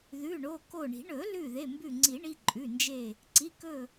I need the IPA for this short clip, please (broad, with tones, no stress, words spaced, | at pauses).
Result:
ðʉ˩˧˩ɳo˩˧˩ko˧˩ɳi̤˨˩˦ ɳɵ˨˩˦lʉ˧˩ ðe˩˧˩mbʉ˧˩ŋ͡ǀi˨˩˦ɳi˩˧˩ ǃʼʉ˩˧˩ nd͡ʒe˧˩ | ǀi˩˧˩kɵ˧˩